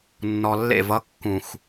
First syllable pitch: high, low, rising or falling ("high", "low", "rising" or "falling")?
low